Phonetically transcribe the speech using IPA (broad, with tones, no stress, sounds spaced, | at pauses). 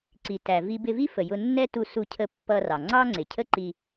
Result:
ǀ i˩ t æ˩ v i˧ b ɪ˧ v i˥ f ə˩ j ʊ˧ nː ɛ˥ t u˧ s u˧ cʰ ə˧ pː ʌ˧ r ɑ˩ ŋ͡ǀ ɑ˥ ŋ͡ǀ ɪ˩ cʰ ə˥ ǃ i˧